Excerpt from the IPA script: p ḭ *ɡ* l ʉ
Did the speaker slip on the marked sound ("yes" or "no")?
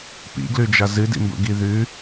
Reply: no